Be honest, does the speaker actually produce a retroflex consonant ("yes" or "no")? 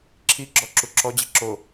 no